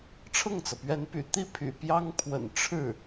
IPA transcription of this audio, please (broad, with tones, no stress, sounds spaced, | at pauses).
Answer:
ʈ͡ʂʰ ɤ˥˩ ŋ t͡s ɤ˩ p ɥ ɛ˧˥ n p y̰˨˩ t̪ i˥˩ pʰ y̰˨˩ p j ɑ˥ ŋ pʰ w ə̰˨˩ n ʈ͡ʂʰ ɻ̩˥˩